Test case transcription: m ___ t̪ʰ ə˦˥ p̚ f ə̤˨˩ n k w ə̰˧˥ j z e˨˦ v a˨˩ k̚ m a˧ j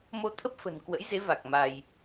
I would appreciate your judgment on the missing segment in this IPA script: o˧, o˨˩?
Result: o˧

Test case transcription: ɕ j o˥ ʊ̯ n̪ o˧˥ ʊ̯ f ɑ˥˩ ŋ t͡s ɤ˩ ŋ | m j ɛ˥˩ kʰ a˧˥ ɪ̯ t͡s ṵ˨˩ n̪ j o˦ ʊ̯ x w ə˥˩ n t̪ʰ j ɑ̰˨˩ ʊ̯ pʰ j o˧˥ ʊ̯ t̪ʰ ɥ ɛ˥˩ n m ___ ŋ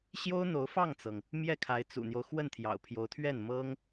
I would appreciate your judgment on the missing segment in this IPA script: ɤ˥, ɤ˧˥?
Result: ɤ˥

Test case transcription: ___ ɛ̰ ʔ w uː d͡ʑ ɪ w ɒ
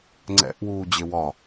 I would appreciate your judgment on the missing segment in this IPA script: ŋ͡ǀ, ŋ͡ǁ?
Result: ŋ͡ǀ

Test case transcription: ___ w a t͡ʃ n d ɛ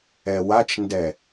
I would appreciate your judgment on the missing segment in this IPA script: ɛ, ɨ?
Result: ɛ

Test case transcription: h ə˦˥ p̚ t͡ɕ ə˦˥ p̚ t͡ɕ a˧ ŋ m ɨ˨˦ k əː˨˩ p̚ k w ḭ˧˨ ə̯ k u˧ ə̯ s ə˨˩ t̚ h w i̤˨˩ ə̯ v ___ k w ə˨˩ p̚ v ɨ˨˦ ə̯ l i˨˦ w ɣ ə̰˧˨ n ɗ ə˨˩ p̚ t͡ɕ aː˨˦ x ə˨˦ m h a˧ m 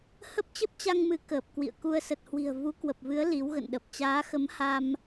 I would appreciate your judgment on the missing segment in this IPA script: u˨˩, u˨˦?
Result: u˨˦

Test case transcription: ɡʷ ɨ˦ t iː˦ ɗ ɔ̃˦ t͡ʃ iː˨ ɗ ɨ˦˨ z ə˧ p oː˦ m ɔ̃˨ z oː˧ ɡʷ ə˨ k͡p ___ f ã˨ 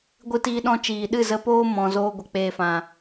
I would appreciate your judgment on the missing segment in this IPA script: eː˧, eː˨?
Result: eː˧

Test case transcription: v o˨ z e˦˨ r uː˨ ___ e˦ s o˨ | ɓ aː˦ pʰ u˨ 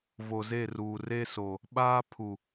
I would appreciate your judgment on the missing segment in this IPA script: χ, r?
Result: r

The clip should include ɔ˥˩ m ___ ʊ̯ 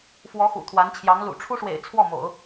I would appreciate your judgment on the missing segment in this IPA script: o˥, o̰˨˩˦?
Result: o̰˨˩˦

